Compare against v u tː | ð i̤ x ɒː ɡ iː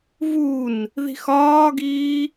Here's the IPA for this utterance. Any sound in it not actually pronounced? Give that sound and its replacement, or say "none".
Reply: tː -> n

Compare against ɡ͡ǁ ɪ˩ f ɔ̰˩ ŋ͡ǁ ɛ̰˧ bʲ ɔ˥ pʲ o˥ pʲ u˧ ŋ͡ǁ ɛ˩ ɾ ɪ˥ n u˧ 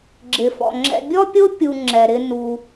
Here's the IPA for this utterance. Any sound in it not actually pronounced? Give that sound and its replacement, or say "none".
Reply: none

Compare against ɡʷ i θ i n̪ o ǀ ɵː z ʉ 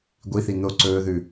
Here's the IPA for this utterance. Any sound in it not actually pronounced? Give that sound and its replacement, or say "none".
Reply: z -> ð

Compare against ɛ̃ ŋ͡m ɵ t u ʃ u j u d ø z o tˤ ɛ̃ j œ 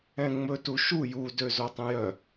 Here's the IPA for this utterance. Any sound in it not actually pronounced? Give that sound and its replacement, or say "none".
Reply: none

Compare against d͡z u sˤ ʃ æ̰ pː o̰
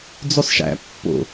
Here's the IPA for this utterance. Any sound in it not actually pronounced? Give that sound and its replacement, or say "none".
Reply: none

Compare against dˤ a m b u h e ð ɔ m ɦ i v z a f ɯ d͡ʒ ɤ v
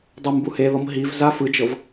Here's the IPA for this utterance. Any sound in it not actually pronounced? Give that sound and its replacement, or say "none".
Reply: none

